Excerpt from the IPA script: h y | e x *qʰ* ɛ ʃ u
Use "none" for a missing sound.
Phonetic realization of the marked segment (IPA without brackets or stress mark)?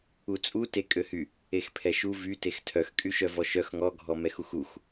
pʰ